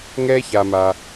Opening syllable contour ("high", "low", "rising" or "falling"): high